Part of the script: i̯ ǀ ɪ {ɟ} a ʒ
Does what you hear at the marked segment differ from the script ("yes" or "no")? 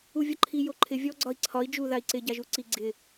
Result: no